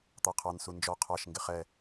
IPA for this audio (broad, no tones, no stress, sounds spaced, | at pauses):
t̪ ɑ qʰ ɑ n s u n d͡ʒ ɔ qʰ ɑ ʃ ŋ ɡ ɪ χ ɛ